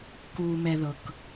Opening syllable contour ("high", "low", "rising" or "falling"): low